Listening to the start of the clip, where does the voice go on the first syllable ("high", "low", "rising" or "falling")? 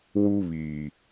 high